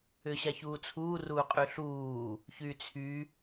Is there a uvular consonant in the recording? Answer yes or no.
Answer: yes